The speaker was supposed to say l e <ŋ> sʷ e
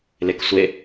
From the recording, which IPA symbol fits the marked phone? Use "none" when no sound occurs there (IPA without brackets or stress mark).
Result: k